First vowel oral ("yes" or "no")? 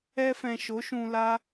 yes